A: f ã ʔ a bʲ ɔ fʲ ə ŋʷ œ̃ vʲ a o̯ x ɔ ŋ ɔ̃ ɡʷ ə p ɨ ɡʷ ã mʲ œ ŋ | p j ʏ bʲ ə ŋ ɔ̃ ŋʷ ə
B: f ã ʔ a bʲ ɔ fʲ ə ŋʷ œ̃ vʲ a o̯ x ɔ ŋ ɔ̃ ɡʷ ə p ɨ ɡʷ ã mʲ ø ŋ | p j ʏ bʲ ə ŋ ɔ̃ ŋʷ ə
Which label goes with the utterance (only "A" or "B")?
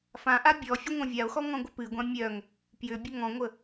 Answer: A